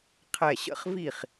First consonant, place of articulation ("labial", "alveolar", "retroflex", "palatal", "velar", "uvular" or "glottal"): uvular